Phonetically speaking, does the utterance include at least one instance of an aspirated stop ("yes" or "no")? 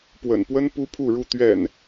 yes